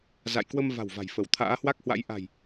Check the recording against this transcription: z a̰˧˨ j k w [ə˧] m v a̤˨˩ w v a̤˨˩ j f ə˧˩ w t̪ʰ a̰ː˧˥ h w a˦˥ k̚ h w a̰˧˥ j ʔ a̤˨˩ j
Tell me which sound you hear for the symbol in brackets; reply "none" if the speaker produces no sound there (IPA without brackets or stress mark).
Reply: ə˧